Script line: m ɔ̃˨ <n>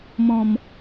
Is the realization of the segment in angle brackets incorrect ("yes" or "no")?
yes